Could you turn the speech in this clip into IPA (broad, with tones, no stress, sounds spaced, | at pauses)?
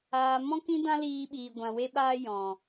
aː˨ m ɔ̃˦ k ĩ˦ d ã˦ l iː˧ ɓ iː˨ ɡʷ ã˨ w e˧ ɓ aː˧ j ɔ̃˨